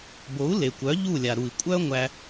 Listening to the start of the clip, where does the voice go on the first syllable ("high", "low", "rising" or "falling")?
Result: rising